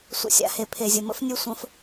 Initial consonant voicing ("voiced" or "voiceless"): voiceless